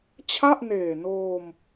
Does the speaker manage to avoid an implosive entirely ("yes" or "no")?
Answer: yes